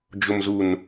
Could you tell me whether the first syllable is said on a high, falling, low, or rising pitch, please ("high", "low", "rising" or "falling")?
low